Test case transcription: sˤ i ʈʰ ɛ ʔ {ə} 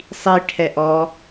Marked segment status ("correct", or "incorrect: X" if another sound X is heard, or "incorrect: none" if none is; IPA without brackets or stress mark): incorrect: ɔ